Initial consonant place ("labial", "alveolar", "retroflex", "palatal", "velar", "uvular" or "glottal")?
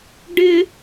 retroflex